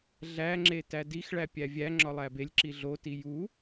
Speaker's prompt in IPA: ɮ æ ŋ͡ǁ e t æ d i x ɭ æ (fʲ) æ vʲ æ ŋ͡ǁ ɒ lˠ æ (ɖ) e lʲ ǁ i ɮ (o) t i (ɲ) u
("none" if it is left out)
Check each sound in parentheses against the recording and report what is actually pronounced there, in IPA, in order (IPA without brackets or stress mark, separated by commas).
pʲ, b, o, j